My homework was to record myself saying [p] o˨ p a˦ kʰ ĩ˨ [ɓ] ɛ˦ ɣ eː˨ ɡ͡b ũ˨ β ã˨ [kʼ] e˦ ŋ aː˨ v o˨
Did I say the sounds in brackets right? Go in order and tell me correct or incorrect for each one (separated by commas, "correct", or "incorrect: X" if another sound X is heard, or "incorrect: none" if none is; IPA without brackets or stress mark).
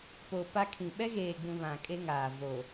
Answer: correct, correct, correct